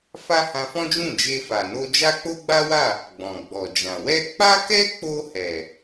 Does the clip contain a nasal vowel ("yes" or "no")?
yes